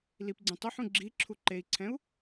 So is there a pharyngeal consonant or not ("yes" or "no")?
yes